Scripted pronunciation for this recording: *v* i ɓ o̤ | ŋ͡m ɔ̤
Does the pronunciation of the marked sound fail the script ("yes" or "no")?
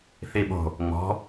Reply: yes